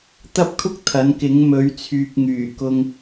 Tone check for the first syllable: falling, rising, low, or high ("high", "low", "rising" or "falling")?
high